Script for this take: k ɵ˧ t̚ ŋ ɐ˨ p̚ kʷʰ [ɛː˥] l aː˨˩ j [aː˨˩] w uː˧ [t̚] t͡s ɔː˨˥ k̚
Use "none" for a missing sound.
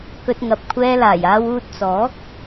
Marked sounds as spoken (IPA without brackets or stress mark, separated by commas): ɛː˧, aː˧, t̚